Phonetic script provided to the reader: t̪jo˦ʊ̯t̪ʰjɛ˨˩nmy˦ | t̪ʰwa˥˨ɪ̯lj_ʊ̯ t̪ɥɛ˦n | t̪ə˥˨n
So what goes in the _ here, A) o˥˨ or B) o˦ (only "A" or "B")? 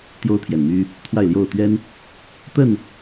A